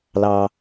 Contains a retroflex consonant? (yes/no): no